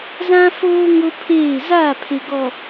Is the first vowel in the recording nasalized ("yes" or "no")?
yes